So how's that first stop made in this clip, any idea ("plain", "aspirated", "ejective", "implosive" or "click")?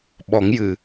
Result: implosive